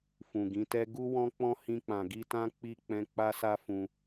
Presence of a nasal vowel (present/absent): present